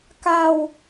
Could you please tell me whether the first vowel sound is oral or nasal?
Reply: oral